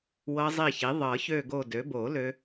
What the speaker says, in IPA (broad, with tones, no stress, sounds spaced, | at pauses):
w ɤ˦˥ zˤ i˦˨ ç i˩˥ ðˤ ɤ˨˩˦ ç ø˦˨ ɡ o˦˨ d ø˩˥ b o˨˩˦ l ø˦˥